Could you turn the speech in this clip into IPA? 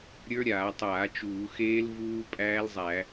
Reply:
ɾʲə˞˦˥ ɾʲaː˧˩˧tˤaː˧˩˧ t͡ʃuː˧˩˧xeː˦˥l vuː˦˥ pʼæː˦˥lzˤæ˧˩˧

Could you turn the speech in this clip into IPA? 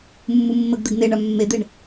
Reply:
mːumːəɡd̪ɛɡ n̪eɳa mːed̪eɳ

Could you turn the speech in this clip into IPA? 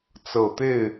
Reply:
t͡sɤ˨˩t̪e˥˨ɪ̯

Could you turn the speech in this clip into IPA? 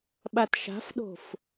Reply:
ɓatʃa̤fɗo̤f

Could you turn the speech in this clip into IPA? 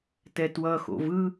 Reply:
tɛtwʌxo̰v ɯ

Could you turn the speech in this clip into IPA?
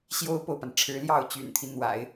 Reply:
ɕjo˥ʊ̯po˨ʊ̯pa˩nʈ͡ʂʰɻ̩˧˥ ljɑ˥˩ʊ̯t͡ɕy̰˨˩nt̪ʰi˦ n̪wa̰˨˩˦ɪ̯

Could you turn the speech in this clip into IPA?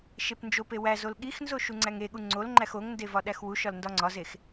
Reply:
ʃepnd͡ʒope wæz olɠixnzo ʃuŋ͡ǀæŋeɠu ŋ͡ǀolŋ͡ǃæx oŋnde vɒɗæxwuʃɒl ndɒŋ͡ǀɒzex

